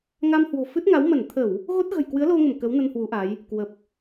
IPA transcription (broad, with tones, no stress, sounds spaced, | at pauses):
ŋ a˧ m h w o̤˨˩ f ɨ˦˥ t̚ ŋ a˨˦ w m ə˧˩ n t̪ʰ ə˧˩˨ w | ɣ o˦˥ t̚ ɣ ə̤˨˩ j k w ɨ˨˦ ə̯ l o˧ ŋ ə˧˩ m k ə˨˦ w n ə˧ n h w u˨˦ ʔ a˨˦ j | k w ə˨˩ p̚